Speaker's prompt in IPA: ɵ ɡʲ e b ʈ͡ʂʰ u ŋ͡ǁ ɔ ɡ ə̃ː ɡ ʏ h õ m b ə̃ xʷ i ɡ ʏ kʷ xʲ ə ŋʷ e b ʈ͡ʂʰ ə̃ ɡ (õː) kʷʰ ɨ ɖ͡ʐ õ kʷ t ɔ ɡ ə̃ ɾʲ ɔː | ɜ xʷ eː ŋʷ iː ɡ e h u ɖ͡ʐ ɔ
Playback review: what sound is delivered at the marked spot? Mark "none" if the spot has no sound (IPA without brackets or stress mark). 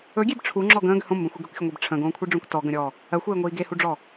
õː